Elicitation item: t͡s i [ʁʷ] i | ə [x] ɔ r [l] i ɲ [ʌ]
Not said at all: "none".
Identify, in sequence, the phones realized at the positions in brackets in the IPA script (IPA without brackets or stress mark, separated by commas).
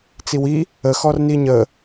w, x, n, ə